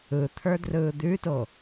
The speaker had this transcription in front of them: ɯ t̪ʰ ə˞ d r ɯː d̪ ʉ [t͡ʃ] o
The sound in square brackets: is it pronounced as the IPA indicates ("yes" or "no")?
no